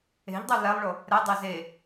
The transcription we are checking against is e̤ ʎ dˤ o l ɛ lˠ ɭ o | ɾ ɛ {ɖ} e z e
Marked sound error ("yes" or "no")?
yes